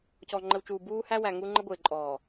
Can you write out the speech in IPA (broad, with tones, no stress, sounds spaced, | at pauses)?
c ɔ˨ ŋ͡ǃ ə˨ w t͡ʃ uː˨ b uː˦ h æ˦ w æ˨ ŋ u˦ ŋ͡ǃ ə˦ ɡʷ ɪː˨ ǃʼ ɔː˨